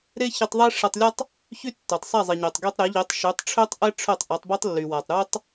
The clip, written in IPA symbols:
ɾ e˥ ç i˧ tˤ ðˤ e˥ ʂ ɛ˧ tˤ lʲ ɔ˥ tˤ | ç y˥ tː œ˩ tˤ sˤ ɛ˥˩ zˤ i˩ ɲ ø˩ tˤ ɡ y˧ tˤ ɾ e˩˥ ʎ i˩˥ tˤ ʃ y˩˥ tˤ ʈ͡ʂʰ ø˥ tˤ ʔ ɛ˥ ʈ͡ʂʰ œ˥˩ tˤ ʔ ɔ˩˥ tˤ b œ˥ tˤ lː y˩ w a˩ tˤ ɾ u˥ tˤ

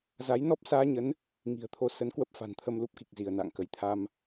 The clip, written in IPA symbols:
z a˨˦ j n ɔ˦˥ p̚ s aː˧ ɲ ə˨˦ n | ŋ i̤˨˩ ə̯ t̪ʰ o˨˦ s ə˨˦ n k w ə˦˥ p̚ f a̤˨˩ n t̪ʰ ə˧ m l u˦˥ p̚ k i˨˩ k̚ z i˧˩ ə̯ n a̰ː˧˨ ŋ k ə˧˩ j t̪ʰ a˧ m

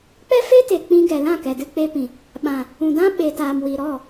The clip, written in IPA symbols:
k͡p ɛ˦ f e˦ t e˨ k͡p ĩ˧ ɡ ɛ˨ l ã˦˨ k ɛ˨ d ɨ˧ k͡p e˧ p ĩ˨ | ɓ ã˨ | ũ˨ d ã˦ ɓ e˨ t aː˨ m w i˨ ɾ ɔ˦˨

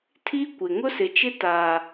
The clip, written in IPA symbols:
tʰ i˦ kʷ ɪ˨ ŋ ʊ˦ s ɪ˨ t͡ʃ ɪ˦ t aː˨

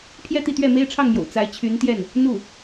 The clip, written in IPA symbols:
pʰ j ɛ˥˧ t̪ i˥˧ t̪ ɥ ɛ˥˩ m e˥ ɪ̯ ʈ͡ʂʰ ɑ˥˩ ŋ m j o̰˨˩ ʊ̯ t͡s a˧˥ ɪ̯ t͡ɕʰ y˧˥ n t̪ j ɛ˥˩ n | n̪ u˥˩

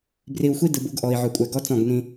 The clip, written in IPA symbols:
b r i˨ u̯ xʷ i˦ d ɯ˨ b u˦ ɡ ʔ ɔ˨ i̯ ʕ ɵ˨ kʷʼ ɛ˨ ɡ ɔ˦ t͡s ɔ̃˦˨ ɡ n ĩ˦

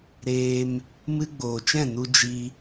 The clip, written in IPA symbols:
ɾ eː˧ m | m ɨ˧ ɡ͡b oː˨ t͡ʃ ɛ̃˦˨ n u˧ d͡ʒ i˧

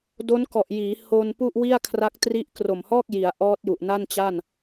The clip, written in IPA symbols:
d o˦˥ n k ɔ˨˩ ʔ j iː˩˦ h o˧ n p u˥˩ ʔ w i˥˩ a̯ kʰ r a˦˥ k̚ t r i˦˥ ʔ k r o˨˩ m h ɔː˥˩ k̚ j i˩˦ a̯ ʔ ɔː˦˥ t̚ j u˨˩ ʔ n a˥˩ n t͡ɕ a˥˩ n

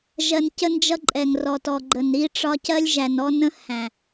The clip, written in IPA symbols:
ʒ ɜ˨ n c ə˦ n d͡ʒ ʌ˦ ǃʼ ɛ˨ ŋ r ɔ˨ t ɔ˨ ɡ͡ǃ ə˨ n ɾ i˦ ʈ͡ʂ ɒ˦ c ɜ˦ lʲ ʒ æ˨ n ɔ˦ n ə̃˦ h æ̃˨

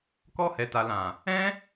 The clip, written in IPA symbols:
k ɔ˧ h ɛ˨ t a˨ l ã˨ | ɛ̃˦

